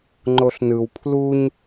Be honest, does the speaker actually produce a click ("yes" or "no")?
yes